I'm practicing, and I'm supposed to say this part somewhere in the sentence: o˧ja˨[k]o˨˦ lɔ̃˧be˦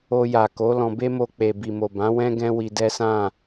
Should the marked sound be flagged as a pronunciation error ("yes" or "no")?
no